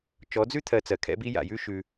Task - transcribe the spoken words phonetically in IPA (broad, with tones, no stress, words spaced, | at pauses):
t͡ʃɔ˨˦d͡zʉ˦ t̪ʰɜ˧t͡sɜ˨kʰɛ̰˦bi˦ ja̰˨jʉ˦ ʃʉ˧